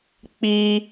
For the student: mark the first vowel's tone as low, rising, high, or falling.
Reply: high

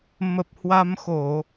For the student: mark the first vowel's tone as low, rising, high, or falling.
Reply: low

